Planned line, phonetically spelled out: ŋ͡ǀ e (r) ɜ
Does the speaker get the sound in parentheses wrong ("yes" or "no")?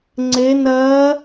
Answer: yes